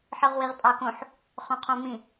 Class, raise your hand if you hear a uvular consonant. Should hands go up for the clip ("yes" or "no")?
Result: yes